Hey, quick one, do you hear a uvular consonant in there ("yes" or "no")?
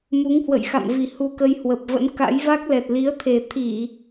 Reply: no